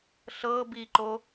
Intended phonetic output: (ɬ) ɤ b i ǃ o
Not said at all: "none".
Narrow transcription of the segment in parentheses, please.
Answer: ɬ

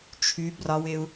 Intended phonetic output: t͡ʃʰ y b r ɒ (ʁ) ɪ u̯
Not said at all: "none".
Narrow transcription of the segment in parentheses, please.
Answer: w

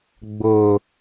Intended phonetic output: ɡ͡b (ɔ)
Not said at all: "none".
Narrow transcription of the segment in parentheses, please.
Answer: ʊ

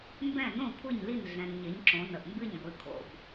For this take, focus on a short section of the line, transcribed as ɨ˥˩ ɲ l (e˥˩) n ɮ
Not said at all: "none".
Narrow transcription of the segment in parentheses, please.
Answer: i˥˩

